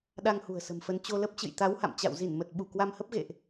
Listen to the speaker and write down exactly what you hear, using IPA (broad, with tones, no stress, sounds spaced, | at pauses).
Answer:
ɗ a˧ ŋ h ṳ˨˩ ə̯ s ə̤˨˩ m f ə˧ n t͡ɕ o˧ l ə˦˥ p̚ t͡ɕ ɨ̰˧˨ j t̪ a˨˦ w h a̰˧˨ m t͡ɕ a̰˧˨ w z i˧˩ n m ə˨˩ t̚ ɓ u˧˩ k w a˧ m h ə˦˥ p̚ ɣ ḛ˧˨ ʔ